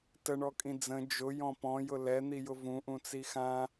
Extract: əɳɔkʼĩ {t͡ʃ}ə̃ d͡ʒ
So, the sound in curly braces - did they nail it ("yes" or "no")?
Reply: no